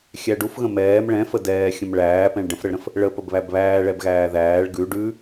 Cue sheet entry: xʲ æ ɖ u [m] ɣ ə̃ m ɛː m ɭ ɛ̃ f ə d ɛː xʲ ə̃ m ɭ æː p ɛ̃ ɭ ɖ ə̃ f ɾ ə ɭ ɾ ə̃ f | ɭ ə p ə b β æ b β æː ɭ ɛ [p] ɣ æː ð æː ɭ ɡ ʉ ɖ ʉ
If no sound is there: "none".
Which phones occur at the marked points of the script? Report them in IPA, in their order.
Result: f, b

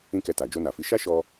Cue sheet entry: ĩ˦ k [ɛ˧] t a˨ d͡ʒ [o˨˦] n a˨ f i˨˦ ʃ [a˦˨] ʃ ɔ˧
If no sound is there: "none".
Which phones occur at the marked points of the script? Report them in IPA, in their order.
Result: ɛ˧, o˧, a˦

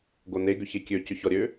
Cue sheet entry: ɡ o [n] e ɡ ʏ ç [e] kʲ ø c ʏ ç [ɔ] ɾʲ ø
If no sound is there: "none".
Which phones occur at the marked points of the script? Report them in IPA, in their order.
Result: n, e, ɔ

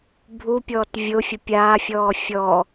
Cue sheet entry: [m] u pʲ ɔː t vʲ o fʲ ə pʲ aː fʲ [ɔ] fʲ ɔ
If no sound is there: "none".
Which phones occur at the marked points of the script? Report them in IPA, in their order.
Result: bʱ, ɔː

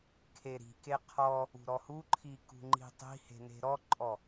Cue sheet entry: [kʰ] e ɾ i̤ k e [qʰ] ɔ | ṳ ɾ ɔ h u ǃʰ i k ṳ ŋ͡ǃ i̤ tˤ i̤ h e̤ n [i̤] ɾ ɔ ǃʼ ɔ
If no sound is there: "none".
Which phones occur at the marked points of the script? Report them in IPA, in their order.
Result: kʰ, qʰ, e̤

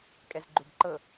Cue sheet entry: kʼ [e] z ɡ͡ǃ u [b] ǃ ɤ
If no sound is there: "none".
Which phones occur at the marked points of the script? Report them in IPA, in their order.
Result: ɛ, b

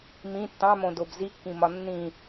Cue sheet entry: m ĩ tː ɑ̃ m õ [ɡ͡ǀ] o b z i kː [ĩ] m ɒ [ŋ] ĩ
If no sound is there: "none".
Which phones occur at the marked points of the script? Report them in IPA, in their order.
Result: d, ĩ, nː

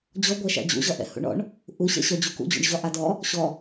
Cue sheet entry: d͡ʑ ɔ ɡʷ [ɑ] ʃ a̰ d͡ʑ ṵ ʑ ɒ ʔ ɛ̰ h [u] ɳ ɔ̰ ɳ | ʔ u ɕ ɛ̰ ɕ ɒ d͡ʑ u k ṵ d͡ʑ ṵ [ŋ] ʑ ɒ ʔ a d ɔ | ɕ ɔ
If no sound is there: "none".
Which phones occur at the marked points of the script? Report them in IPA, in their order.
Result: a, ṵ, ɳ

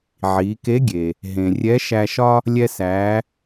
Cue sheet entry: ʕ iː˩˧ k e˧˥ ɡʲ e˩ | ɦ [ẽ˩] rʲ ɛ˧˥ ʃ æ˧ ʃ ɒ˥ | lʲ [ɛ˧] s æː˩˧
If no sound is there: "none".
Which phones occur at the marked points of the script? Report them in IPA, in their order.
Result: ẽ˩, ɛ˧

